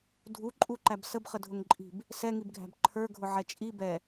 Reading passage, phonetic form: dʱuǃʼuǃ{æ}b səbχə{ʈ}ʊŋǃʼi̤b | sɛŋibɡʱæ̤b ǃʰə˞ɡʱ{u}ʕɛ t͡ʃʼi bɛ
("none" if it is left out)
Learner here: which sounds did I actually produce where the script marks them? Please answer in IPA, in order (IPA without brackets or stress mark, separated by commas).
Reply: æ, dʱ, ʊ